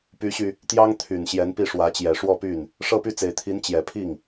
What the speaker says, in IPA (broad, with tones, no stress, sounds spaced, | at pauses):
p y˧˥ ɕ y˧ | t̪ j ɑ˥ ŋ t̪ʰ y˨˩ n ɕ j ɛ˧˥ n p i˥˩ ʂ w ä˧˥ t͡ɕ j ɛ˨˩ ʂ w ɔ˥˧ p y˥˩ n | ʂ ɤ˥˧ p y˥˩ t͡s e˨˩ ɪ̯ t̪ʰ i˧˥ n t͡ɕ j ɛ˨˩ pʰ i˥˩ ŋ